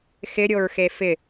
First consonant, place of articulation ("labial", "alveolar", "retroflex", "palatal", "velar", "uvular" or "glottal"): velar